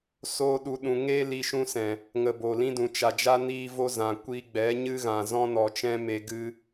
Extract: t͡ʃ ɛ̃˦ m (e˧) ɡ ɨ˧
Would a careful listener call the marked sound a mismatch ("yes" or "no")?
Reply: no